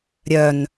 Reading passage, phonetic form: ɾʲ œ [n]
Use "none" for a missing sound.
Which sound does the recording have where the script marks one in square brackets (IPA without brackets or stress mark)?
n